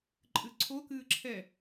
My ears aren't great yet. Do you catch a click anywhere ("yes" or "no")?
yes